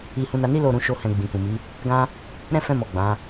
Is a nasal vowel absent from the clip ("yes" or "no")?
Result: no